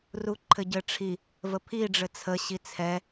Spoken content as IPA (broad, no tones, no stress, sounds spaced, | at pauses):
r u ǃʰ ɘ ɟ ɘ ʈ͡ʂʰ i | v ə pʰ i ɖ͡ʐ ɘ t͡sʰ ə ɕ i t͡sʰ ɛ